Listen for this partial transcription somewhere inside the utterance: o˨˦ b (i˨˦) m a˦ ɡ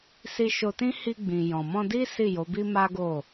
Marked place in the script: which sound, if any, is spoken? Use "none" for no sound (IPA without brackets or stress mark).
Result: i˦